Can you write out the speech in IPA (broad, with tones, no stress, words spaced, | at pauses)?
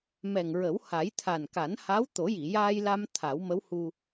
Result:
mɛ˨˩ŋɹə˨˩˦w ha˨˩˦jt̪ʰa˨˩nka˨˩˦n ha˧˥wt̪o˨˩˦ji˨˩˨ jaː˧jla˧m t̪ʰa˨˩˦wmə˧˥whu˧